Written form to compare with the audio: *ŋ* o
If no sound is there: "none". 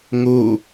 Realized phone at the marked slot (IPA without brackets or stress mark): ŋ